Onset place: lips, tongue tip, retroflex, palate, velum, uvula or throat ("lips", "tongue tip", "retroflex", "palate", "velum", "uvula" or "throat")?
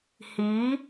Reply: throat